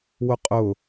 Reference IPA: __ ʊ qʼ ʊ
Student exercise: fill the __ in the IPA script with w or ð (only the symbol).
w